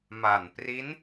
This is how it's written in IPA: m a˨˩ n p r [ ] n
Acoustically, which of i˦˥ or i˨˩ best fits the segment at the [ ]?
i˦˥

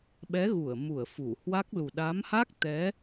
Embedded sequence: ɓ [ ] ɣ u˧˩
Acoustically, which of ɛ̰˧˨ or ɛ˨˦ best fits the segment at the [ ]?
ɛ˨˦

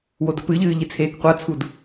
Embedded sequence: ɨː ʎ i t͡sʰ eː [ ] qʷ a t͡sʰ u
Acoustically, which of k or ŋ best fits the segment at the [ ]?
k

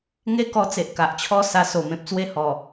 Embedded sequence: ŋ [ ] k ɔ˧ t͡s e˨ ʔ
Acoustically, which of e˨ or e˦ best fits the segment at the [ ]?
e˦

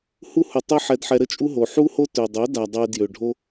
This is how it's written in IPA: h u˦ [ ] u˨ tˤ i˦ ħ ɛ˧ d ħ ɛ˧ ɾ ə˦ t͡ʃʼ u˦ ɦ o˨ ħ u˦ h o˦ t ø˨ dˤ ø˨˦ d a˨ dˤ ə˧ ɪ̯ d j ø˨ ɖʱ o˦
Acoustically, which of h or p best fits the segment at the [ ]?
h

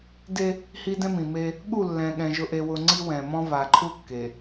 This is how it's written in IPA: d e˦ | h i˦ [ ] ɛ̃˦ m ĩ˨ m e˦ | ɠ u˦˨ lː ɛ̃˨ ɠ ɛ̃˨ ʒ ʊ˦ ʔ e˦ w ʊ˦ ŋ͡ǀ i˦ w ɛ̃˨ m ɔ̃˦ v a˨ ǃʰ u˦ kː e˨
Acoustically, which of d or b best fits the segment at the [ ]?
d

